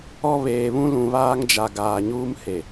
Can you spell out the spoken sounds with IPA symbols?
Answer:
ɔ˦ β eː˨ β ũ˦ l ũ˨ β aː˦ ŋ d͡ʒ a˨ ɡ aː˨ ɲ uː˦ m h e˨

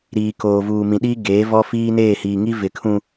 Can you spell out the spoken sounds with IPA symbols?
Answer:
ɾ iː˨ k oː˨ v uː˨ m ĩ˨ ɗ iː˦ ɡ eː˨˦ v ɔ˦ f iː˦ n eː˦˨ h iː˨ ŋ i˦ v ɪ˨ kʰ ũ˨

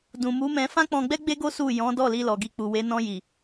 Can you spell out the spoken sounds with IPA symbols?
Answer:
d ũ˨ m u˨˦ m ɛ̃˧ f ã˦ k͡p ɔ̃˧ ɡ͡b ɛ˦ ɡ͡b e˦ ɡ o˦ s u˦˨ j ɔ̃˨˦ d ɔ˦˨ l i˧ l ɔ˨ ɡ i˧ k͡p u˨ w e˨˦ n ɔ̃˧ j i˨

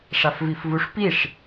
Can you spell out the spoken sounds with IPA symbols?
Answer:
ʂ a f v i f v u ʂ p i ʂ

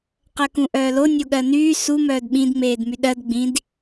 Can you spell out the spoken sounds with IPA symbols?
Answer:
q ɜ k ũ ʔ œː l o nʲ o ɠ ɜ n yː s u m œː d ɓ ĩ d ŋ͡m eː d m y ɗ ɜ d ɡ͡b ĩ d

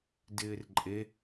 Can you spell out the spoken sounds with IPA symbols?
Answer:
d ɪː r ǃʼ e

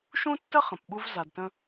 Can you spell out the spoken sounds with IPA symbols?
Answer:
ʃ ũ˥ tː ə˥ χ ə̃˩ p ɓ u˧ v z a˩ d t ə̃˧

